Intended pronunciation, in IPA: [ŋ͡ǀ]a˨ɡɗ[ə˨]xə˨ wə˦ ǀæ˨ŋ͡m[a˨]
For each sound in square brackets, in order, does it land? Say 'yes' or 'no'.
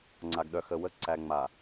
yes, no, yes

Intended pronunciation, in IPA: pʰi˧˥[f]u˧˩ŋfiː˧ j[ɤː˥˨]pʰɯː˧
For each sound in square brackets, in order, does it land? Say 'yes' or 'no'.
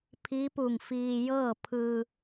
no, yes

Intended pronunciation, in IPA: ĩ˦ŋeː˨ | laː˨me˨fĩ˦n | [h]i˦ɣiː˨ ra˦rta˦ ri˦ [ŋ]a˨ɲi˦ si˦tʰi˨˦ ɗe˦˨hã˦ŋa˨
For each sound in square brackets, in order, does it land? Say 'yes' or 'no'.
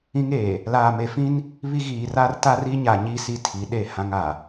no, no

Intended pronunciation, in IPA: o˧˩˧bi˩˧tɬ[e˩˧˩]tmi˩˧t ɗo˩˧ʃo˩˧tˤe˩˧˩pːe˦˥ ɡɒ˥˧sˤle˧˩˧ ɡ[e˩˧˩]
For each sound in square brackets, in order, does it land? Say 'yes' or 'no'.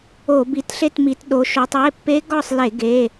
no, yes

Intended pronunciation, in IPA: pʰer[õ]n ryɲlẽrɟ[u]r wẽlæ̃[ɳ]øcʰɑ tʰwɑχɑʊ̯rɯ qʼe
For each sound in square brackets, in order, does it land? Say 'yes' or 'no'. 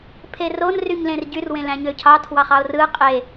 no, no, no

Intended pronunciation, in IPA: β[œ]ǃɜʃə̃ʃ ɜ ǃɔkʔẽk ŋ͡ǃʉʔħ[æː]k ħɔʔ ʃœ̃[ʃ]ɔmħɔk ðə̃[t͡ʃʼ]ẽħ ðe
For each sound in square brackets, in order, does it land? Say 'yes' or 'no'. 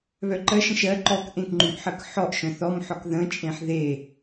yes, no, no, yes

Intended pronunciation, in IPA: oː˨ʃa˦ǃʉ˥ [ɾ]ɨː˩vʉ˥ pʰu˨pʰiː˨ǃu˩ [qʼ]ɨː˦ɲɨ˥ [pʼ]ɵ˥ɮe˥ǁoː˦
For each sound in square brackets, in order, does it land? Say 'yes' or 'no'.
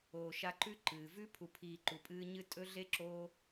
no, no, no

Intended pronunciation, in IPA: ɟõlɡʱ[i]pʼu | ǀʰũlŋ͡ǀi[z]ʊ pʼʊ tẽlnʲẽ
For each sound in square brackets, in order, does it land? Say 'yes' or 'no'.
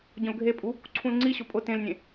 no, no

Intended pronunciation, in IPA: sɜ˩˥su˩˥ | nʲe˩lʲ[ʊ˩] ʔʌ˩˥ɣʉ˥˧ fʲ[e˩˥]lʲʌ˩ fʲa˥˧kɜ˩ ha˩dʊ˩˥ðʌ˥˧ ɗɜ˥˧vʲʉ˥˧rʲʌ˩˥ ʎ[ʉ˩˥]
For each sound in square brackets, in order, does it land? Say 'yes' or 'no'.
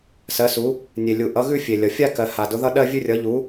no, no, no

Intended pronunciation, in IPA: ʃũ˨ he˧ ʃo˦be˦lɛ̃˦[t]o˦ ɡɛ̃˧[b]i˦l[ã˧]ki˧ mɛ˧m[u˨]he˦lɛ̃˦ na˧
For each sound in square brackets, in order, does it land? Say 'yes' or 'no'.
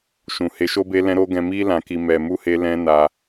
no, no, yes, no

